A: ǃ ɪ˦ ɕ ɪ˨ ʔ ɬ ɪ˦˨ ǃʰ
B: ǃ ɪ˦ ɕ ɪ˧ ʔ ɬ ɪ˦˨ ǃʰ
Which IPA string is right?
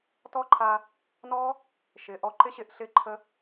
B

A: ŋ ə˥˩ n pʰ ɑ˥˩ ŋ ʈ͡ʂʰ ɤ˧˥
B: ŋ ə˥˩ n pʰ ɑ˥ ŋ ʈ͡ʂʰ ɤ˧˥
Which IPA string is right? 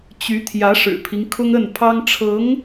B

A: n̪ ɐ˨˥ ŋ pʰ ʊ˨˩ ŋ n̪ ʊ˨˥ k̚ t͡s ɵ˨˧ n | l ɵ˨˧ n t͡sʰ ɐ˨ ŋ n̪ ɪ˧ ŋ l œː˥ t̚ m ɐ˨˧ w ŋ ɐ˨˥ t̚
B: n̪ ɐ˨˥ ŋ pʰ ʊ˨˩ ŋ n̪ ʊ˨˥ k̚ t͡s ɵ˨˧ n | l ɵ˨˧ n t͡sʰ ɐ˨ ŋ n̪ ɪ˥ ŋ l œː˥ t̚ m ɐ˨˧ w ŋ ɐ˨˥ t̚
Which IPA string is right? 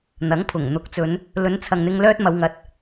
A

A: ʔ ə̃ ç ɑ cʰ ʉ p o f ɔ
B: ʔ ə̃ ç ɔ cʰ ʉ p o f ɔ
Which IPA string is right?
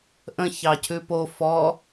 A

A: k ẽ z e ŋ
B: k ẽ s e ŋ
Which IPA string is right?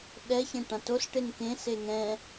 B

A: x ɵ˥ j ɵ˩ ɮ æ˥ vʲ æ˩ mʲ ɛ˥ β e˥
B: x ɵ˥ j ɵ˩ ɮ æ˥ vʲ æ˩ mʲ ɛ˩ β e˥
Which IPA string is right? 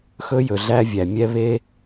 A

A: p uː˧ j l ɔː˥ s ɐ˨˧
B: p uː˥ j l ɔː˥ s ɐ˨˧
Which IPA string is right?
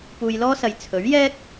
A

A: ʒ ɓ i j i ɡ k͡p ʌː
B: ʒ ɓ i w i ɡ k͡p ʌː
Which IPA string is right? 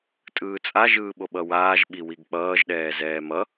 B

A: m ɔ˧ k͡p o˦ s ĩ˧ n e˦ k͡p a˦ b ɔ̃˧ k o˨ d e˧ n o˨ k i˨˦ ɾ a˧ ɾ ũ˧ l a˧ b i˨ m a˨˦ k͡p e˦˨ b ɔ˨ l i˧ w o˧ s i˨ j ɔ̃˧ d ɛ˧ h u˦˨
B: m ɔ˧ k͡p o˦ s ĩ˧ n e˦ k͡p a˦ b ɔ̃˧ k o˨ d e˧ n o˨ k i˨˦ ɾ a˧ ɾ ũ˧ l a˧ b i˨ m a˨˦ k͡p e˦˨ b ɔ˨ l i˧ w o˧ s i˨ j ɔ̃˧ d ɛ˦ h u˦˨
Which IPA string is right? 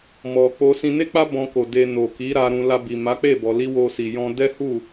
B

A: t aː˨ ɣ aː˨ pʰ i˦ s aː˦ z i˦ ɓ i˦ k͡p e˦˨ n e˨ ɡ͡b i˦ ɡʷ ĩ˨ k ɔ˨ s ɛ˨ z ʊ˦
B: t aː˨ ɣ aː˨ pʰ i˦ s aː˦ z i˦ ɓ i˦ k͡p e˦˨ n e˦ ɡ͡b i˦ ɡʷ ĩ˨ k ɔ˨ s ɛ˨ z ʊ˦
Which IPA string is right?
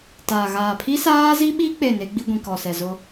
B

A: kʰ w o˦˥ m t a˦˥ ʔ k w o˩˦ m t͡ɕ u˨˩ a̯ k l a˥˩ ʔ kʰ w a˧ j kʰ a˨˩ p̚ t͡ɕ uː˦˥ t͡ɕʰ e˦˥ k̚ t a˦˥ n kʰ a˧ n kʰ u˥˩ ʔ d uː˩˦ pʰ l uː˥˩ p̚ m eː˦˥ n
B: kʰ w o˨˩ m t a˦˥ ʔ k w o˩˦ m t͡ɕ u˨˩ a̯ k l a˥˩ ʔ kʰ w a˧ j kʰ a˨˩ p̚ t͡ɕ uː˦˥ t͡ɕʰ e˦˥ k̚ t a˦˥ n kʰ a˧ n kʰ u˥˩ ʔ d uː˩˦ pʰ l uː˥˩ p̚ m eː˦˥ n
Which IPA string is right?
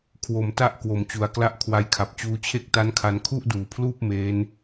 B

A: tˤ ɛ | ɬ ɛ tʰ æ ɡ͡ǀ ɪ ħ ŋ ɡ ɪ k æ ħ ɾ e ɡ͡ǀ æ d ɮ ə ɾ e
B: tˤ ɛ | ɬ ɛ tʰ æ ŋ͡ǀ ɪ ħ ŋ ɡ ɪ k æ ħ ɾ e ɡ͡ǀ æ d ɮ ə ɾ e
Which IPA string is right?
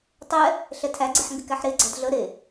A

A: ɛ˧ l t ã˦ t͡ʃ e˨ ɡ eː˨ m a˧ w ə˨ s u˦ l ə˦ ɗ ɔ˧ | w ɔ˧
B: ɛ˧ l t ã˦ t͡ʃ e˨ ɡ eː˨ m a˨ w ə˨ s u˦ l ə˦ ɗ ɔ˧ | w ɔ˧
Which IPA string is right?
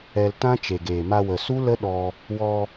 A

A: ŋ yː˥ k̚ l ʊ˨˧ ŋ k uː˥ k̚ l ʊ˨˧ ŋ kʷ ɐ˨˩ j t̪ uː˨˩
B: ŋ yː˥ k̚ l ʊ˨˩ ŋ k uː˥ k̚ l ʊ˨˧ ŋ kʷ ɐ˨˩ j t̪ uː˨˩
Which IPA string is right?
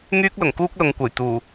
B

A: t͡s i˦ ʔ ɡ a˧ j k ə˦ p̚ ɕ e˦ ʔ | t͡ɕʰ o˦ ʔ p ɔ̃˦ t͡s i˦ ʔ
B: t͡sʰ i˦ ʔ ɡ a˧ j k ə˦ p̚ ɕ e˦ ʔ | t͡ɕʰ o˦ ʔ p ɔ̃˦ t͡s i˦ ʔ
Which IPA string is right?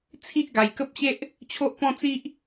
B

